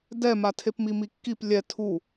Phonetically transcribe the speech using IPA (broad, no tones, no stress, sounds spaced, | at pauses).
d ɛ m a tʰ e p m i m i kː i p lʲ ɛ tʰ u